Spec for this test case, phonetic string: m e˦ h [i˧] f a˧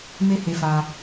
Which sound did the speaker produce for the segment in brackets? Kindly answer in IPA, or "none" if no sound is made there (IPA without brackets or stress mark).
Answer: e˧